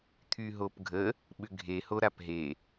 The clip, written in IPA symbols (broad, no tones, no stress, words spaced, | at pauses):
t̪ʰyɦopɡʱə | ɓʏɡʱe hoɾapɦe